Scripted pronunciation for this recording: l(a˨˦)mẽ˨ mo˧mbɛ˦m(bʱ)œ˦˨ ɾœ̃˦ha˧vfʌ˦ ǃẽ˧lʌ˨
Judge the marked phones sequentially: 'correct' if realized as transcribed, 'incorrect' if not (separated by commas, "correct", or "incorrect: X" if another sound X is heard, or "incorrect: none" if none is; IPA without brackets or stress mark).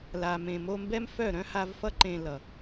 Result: incorrect: a˨, incorrect: f